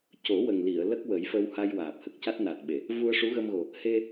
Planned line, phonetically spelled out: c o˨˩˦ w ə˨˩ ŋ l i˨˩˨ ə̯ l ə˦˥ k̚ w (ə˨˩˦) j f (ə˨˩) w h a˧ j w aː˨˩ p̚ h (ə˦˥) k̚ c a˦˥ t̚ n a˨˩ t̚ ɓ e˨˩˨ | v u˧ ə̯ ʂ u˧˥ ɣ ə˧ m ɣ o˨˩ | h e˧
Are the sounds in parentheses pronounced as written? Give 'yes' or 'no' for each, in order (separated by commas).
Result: yes, no, no